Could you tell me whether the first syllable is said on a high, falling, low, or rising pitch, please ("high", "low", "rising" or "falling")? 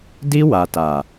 high